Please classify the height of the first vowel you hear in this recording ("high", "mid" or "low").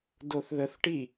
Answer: mid